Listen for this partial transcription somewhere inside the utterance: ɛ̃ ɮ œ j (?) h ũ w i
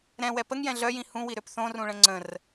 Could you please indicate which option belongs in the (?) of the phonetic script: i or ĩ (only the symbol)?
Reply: ĩ